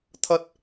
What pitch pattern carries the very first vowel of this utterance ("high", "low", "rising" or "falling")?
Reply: high